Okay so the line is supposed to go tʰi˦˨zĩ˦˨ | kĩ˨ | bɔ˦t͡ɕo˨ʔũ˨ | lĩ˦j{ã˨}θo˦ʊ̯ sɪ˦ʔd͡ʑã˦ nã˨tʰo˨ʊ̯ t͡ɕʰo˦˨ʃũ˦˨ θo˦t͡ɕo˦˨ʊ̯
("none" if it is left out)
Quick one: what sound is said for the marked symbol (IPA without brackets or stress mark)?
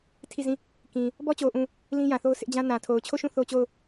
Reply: ã˨